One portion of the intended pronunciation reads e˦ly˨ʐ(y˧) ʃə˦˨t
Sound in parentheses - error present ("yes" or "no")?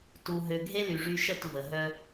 no